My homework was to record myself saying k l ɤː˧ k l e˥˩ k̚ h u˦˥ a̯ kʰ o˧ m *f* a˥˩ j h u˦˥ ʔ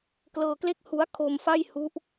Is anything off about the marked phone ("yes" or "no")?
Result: no